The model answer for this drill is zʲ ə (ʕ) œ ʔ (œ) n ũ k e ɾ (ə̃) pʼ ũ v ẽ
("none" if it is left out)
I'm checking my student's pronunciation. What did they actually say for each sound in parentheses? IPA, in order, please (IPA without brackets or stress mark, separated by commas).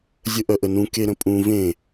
ʔ, ə, ə̃